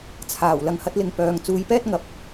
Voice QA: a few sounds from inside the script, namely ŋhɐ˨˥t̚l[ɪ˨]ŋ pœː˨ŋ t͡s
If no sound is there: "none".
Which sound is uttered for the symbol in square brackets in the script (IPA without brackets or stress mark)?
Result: ɪ˨